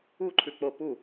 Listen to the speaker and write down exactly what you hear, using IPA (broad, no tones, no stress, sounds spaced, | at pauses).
u ǃʰ ʉ k͡p o p u